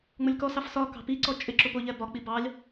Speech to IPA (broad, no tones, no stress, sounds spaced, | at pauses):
ŋ͡m ʊ lʲ k ɔ s ɑ f s ɒ k ɑ̤ p i ǀ ɔ t͡ʃʼ ɪ ǁ ʊ p ʊ ʎ ɛ b ɒ k͡p i b ɑ lʲ